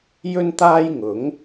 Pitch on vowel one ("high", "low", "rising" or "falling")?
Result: high